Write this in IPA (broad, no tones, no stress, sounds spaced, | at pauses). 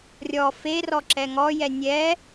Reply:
rʲ ɔ f e r ɔ ǁ ɛ ŋ ɔ j ɛ nʲ ɛ